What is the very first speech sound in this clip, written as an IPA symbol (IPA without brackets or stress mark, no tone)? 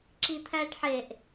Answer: ǁ